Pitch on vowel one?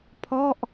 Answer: falling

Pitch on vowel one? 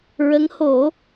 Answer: rising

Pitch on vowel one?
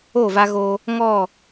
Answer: falling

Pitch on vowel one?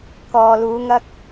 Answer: low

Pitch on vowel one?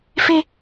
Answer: high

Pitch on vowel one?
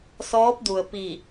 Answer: rising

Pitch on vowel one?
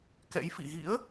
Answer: rising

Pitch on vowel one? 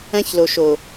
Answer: high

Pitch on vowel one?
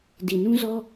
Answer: low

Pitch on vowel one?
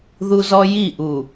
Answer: high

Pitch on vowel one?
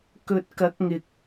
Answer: low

